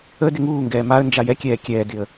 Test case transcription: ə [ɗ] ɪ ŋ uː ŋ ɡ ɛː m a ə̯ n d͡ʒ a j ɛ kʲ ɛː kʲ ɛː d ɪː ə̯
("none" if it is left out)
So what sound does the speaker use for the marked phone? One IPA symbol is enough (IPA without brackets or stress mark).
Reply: d